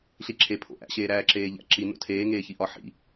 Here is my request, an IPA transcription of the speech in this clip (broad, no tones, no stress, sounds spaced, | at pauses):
ɬ i ǁʰ e pʰ o̰ ʔ æ̰ ɕ eː ɾ æː ǁ eː ʎ æ̰ ǁ i n o̰ tʰ eː ŋ eː ç i ʔ ɒ ħ ḭ